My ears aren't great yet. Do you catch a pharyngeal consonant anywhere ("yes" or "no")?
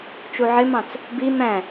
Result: yes